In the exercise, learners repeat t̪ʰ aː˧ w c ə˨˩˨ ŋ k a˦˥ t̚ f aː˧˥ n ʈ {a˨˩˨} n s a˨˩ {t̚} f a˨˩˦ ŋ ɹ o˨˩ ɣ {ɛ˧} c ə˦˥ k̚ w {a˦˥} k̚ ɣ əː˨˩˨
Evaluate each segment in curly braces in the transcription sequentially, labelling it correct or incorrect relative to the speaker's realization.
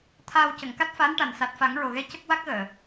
incorrect: a˨˩, correct, incorrect: ɛ˧˥, correct

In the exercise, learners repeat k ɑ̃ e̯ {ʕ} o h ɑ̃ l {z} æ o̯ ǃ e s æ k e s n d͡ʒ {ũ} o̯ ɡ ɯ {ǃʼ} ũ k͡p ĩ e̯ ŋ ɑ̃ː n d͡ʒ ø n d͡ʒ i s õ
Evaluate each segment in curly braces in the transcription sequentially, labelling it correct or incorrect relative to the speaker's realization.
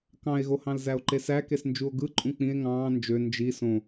incorrect: ɣ, correct, incorrect: u, correct

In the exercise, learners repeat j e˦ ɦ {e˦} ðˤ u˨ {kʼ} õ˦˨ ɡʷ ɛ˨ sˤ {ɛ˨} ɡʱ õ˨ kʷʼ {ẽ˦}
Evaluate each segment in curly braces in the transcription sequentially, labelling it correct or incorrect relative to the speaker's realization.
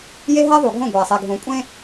incorrect: ɛ˦, incorrect: ɡʱ, incorrect: e˨, correct

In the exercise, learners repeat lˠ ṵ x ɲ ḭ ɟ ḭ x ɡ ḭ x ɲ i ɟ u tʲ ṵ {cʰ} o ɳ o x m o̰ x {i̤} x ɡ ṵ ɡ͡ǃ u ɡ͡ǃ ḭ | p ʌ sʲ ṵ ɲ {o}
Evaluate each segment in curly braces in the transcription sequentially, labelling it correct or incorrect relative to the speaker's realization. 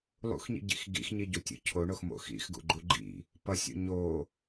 correct, incorrect: ḭ, correct

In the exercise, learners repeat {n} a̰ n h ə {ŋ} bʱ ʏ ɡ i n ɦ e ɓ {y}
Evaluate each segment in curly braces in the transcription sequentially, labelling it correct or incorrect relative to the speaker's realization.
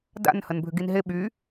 incorrect: d, incorrect: n, correct

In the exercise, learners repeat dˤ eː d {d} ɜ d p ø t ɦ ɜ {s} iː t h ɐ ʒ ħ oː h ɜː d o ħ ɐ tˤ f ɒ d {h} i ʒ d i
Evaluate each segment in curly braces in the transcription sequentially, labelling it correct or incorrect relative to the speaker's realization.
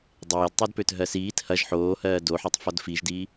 incorrect: tˤ, correct, incorrect: f

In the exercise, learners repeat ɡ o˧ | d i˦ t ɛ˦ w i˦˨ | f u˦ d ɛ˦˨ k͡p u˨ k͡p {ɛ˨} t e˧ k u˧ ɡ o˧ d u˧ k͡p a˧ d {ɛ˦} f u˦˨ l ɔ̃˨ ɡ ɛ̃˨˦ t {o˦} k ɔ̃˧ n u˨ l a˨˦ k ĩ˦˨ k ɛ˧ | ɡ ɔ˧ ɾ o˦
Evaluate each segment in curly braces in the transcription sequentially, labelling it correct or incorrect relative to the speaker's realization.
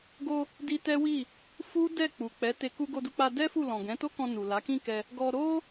incorrect: ɛ˨˦, correct, correct

